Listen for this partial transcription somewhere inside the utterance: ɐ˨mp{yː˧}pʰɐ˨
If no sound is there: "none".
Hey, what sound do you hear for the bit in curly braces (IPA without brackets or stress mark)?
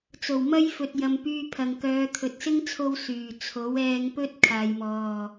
yː˧